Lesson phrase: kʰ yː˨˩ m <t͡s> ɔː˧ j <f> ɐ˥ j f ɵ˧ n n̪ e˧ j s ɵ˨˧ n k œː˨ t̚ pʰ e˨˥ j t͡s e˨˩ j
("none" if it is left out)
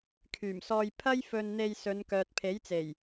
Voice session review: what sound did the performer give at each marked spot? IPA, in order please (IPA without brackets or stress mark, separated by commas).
s, pʰ